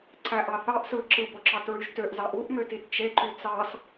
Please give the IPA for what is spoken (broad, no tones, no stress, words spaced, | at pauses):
ǀæʔɑθɑʔ sɯ ǁɯboǁɑtɹyʒ tøʔzɑʔ uʔmøtit t͡ʃeǃy t͡sɑs